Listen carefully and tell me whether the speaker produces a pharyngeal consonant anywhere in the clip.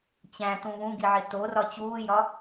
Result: yes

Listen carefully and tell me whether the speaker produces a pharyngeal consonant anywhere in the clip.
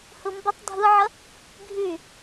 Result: yes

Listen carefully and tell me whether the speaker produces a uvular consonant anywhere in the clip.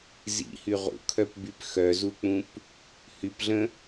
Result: yes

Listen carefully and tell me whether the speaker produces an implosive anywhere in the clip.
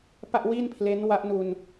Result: no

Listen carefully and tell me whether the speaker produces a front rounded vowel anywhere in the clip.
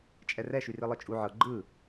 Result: yes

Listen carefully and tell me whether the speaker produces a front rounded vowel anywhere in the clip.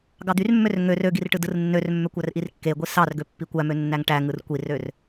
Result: yes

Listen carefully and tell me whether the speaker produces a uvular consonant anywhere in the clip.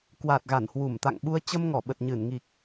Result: no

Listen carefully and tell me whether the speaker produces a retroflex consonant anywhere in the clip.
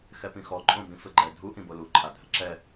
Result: no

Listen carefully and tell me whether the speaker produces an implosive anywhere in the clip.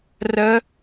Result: no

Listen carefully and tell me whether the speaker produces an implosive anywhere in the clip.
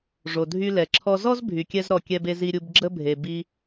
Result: no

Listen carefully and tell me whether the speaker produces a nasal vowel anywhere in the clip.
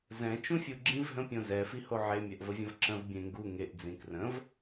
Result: yes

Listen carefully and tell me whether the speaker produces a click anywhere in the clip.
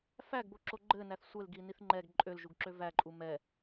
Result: yes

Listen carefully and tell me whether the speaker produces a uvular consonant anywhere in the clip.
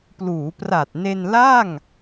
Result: no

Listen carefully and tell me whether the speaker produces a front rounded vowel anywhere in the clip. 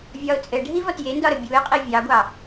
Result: no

